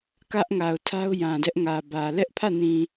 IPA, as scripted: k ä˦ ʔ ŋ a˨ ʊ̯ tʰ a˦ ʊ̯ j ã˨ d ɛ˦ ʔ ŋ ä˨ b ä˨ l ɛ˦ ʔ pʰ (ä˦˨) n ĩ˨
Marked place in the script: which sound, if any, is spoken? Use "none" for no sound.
ä˦˨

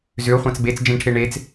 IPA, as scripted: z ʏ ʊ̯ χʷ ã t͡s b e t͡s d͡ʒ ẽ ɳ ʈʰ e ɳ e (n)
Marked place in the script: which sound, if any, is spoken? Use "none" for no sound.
t͡s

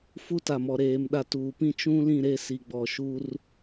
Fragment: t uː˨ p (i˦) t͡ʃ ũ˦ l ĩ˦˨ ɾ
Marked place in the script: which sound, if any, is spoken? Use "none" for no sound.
ĩ˦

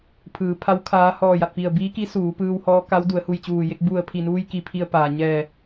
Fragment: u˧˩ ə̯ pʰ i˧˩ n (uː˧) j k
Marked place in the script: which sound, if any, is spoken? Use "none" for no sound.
uː˧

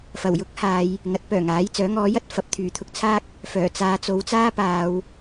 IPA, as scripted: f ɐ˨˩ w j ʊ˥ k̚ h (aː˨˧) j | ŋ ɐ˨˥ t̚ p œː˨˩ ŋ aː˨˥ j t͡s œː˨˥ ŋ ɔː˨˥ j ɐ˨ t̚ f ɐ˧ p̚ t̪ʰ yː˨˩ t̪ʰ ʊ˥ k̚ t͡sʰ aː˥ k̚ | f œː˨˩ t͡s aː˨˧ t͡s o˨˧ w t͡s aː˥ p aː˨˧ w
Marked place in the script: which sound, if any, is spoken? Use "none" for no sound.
aː˨˧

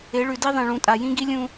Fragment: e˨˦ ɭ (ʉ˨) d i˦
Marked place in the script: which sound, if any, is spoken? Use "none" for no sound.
ʉ˨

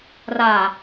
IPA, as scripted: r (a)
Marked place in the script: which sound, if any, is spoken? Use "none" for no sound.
a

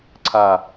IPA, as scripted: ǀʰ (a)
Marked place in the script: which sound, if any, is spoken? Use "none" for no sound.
a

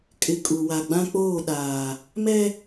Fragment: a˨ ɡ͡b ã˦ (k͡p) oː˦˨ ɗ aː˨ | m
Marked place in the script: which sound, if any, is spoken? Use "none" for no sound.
k͡p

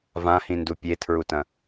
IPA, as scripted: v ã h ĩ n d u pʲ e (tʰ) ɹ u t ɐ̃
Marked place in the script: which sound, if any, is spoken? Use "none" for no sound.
tʰ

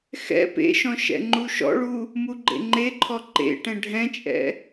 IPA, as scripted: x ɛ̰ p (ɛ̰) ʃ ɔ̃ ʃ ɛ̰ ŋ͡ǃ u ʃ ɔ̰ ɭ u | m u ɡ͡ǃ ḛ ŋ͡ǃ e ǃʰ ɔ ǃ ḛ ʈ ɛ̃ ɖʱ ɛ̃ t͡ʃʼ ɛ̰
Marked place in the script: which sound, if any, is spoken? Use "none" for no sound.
ḛ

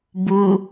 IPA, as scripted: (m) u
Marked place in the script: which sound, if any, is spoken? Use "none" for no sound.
b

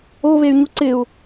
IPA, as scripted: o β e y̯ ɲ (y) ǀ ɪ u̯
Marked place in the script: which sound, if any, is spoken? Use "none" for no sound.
u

